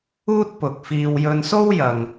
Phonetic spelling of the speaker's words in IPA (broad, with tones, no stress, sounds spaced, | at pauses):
uː˥ t̚ p ʊ˨ k̚ f iː˧ w j ɵ˧ n s o˥ w j ɐ˨ ŋ